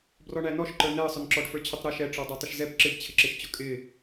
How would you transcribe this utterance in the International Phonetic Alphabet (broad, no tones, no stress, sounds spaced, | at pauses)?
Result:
b r ɔ ɳ æ n ɔ ʃ ǃ ə˞ n ɛ ə̯ sˤ ʊ n ǁ ɔ ɖ f ə˞ t͡ɕʰ ʊ tˤ ɾ æ ʃ ɛ ʈ͡ʂ ɔ dˤ ɛ tˤ ɪ ʃ z ɛ p ǁ ɪ b t͡ɕʰ ɪ ǁ ɪ ʃ t͡ɕ ʊ kʼ ɪ